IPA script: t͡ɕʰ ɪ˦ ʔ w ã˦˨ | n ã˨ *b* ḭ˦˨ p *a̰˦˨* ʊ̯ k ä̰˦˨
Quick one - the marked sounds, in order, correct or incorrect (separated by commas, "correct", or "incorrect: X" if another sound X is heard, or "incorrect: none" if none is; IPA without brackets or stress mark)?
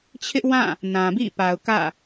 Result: correct, incorrect: a˨